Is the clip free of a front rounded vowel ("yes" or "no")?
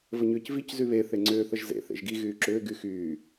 no